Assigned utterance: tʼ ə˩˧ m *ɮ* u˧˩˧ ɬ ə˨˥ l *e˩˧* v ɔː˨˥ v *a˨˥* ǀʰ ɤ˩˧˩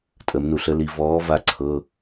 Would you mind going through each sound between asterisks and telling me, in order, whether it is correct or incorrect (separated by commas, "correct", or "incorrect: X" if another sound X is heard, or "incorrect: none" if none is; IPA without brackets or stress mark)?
incorrect: n, incorrect: i˩˧, correct